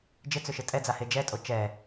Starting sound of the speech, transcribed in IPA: d͡ʒ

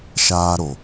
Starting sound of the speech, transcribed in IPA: ʃ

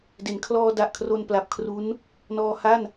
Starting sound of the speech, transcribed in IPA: d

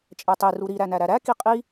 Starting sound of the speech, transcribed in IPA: t͡ʃʼ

